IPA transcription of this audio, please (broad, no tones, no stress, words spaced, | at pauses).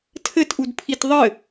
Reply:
tʰɘtʔudpʰit ðˤɘ